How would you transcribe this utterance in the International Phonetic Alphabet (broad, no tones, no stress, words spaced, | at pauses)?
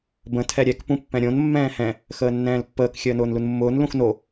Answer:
bə̃ tʰɛɾʲɛk pũpːɛ̃ɾʲõn mːɛ̃ːhɛ̃ | xəːnːɛ̃ːlpːəːk xʲəːnʊːnlunmːʊːn lũxno